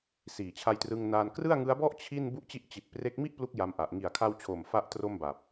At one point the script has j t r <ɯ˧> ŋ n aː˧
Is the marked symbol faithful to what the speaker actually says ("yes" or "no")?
yes